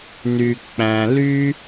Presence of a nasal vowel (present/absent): present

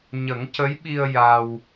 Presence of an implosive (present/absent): present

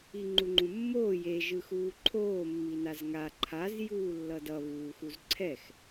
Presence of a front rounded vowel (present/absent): absent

